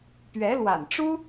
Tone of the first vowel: rising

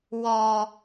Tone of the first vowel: low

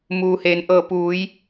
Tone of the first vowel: low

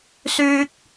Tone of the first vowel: high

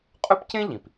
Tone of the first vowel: high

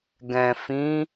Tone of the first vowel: low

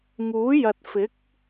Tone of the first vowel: rising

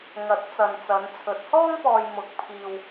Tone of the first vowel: rising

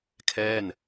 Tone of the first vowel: falling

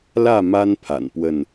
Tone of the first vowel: falling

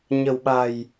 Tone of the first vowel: low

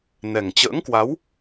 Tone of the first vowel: low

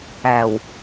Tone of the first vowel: low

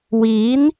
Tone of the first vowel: rising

